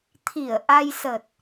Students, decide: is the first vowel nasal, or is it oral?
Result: oral